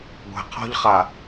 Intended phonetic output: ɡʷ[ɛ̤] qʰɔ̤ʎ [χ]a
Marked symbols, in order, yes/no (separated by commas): yes, yes